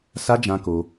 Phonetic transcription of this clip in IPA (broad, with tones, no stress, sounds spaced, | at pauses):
s a˦ d͡ʒ ã˧ k o˧